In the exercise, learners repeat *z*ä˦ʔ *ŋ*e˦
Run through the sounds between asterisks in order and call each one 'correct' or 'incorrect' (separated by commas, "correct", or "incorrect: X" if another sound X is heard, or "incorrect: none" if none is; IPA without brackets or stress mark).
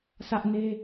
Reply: incorrect: s, incorrect: n